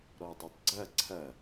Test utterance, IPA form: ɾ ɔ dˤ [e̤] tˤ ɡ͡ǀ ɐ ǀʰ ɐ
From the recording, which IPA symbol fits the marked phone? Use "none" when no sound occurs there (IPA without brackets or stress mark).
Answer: e